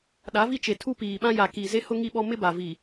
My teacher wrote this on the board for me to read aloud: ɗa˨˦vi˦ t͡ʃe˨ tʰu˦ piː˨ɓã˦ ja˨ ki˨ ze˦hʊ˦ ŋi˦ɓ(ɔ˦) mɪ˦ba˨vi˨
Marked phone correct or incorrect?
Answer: correct